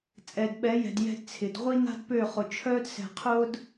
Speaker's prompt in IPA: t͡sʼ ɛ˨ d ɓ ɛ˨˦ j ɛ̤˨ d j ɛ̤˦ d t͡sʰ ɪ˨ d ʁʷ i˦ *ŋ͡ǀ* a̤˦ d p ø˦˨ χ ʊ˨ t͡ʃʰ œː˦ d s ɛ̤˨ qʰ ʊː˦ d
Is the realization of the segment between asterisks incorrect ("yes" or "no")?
yes